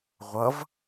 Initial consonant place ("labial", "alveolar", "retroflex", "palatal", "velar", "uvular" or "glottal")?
uvular